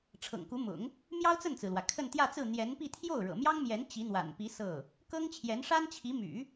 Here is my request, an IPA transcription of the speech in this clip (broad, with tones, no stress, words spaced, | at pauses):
ʈ͡ʂʰɤ̰˨˩ŋku˧˥mʊ̰˨˩˦ŋ | mjɑ˥ʊ̯t͡sə˥˩nt͡sɹ̩˩lwä˩ kʰə˥˧nt̪jä˥˧t͡sɹ̩˥˩ n̪jɛ˧˥npi˥˧ t̪ʰjo˥˩ʊ̯ɻɤ̰˨˩mjɑ˥ŋmjɛ˧˥n t͡ɕi˧˥n̪wa̰˨˩npi˧˥ sɤ˥˩ | kɤ˥ŋt͡ɕʰjɛ˧˥n ʂa˥nt͡ɕʰi˧˥ my̰˨˩˦